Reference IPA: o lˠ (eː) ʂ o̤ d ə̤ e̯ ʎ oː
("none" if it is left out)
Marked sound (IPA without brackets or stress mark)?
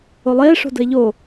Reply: eː